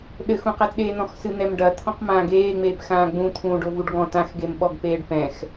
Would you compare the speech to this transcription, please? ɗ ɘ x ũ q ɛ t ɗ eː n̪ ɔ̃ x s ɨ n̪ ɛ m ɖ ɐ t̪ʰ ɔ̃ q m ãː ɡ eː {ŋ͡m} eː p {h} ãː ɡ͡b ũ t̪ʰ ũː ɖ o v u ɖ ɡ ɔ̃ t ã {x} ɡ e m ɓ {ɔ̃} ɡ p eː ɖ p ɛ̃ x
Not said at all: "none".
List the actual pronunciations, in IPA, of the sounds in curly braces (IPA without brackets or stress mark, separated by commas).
ŋ͡m, x, x, ɔ